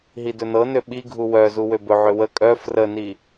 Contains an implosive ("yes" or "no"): yes